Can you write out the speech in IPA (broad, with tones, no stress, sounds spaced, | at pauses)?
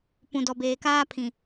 p ũ˨ d ɔ˨ b eː˨ k aː˦ pʰ ĩ˨